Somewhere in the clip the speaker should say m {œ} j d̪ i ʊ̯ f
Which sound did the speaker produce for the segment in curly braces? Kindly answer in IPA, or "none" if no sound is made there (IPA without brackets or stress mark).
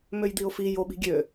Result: ø